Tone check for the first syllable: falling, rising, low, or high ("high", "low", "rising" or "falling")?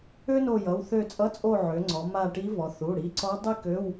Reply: high